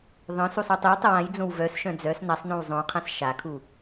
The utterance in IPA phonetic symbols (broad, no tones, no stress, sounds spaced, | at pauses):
ðˤ œ̃ s u sˤ o tˤ i w tˤ ə w ã j d͡z õ w v œ s ʃ œ̃ d͡z œ s n a sˤ n õ w zˤ õ qʰ ã s ʃ a kʰ u